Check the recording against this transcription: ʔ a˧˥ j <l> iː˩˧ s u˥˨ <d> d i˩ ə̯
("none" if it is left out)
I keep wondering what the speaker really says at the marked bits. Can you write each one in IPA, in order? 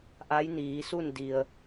n, n

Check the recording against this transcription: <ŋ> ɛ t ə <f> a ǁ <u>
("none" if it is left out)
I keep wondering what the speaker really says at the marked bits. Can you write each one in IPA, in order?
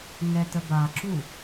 ŋ, b, u

